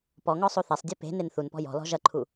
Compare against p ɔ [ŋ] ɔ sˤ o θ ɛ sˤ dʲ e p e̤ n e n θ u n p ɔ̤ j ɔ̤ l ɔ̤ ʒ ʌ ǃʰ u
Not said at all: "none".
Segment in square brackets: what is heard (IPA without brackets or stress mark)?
ŋ